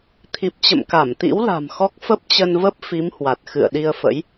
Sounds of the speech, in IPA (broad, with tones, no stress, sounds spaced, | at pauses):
t̪ʰ i˨˩ p̚ t͡ɕ ə̰˧˨ m k a˧˩ m t̪ ḭ˧˥ w l a̤˨˩ m x ɔ˦˥ k̚ f ə˦˥ p̚ t͡ɕ ə˧ n v ə˦˥ p̚ f i˨˦ m h w a˨˩ t̚ x ɨ̰˧˨ ə̯ ɗ i˧ ə̯ f ə̰˧˥ j